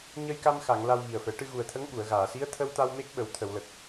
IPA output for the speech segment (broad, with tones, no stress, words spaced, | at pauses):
ɲə˧jka˧mxa˨˩˨ŋ la˧wɣi˨˩ə̯fɛ˨˩˦ ʈɨ˧ɣu˨˩ə̯t̪ʰə˧˥ŋ ɓu˨˩˨ə̯ɣaː˨˩˨si˧˥ə̯ t̪ʰə˧wt̪a˧w me˦˥k̚ɓə˨˩˦w t̪ʰə˨˩˨wlə˨˩k̚